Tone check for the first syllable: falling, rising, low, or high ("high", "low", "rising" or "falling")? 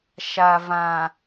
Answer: low